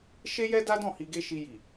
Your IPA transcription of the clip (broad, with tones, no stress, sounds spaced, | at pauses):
ʃ e˦ j ɛ˦ d a˦ d ɔ̃˦˨ h i˧ ɡ e˦ ʃ i˧ j i˨